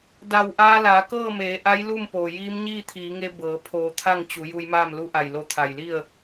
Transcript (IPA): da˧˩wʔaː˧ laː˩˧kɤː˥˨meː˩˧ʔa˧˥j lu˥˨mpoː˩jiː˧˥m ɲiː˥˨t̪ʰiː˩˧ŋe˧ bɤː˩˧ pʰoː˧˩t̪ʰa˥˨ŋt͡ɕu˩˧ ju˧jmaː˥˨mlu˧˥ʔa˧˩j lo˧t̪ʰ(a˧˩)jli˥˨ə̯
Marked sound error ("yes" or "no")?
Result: no